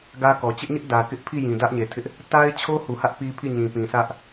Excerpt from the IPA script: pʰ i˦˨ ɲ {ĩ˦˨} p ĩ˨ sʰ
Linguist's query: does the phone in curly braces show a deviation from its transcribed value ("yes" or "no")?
yes